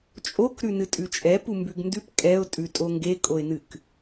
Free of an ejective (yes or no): no